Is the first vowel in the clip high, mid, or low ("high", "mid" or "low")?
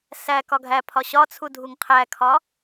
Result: low